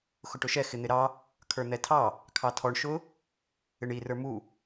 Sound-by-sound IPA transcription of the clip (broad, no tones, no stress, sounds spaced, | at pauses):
x ʊ ʈ ʊ ʃ ɛ x ɪ n̪ ɪ ɾ ɑ | kʰ ə˞ n̪ ɛ tʰ ɑ | kʰ ɑ tʰ ɔ ɳ ʃ ʊ | ɪ ɳ i r ə˞ m u